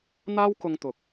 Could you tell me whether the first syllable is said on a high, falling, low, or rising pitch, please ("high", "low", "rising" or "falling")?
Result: high